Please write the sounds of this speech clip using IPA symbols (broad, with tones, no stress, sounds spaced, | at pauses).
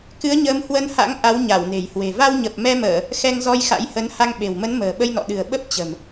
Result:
k ɨ˨˦ ə̯ ɲ əː˨˦ m h w ə˧ n h a̰˧˥ ŋ ʔ a˨˦ w ɲ a˧˩ w n e̤˨˩ j h w e̤˨˩ v a˧ w ɲ ə˨˩ p̚ m ɛ˧ m əː˧˩˨ | x ɛ˧ ŋ z ɔ˧ j x a̰˧˥ j h ə˨˦ n h a˧ ŋ ɓ e̤˨˩ w m ə˨˦ n m ə̤ː˨˩ ɓ ə˧ j n ɔ̰˧˨ ɗ ɨ̤˨˩ ə̯ ɓ ə˦˥ p̚ t͡ɕ ə̤˨˩ m